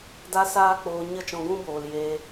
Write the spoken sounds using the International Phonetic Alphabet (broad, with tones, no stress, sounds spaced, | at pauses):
d a˦ s aː˦ k͡p oː˧ ɲ ə˦˨ t͡ʃ ɔ̃˧ ɡ ũ˦ b oː˨ l j eː˧